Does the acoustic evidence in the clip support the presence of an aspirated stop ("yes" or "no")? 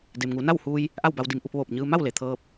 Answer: yes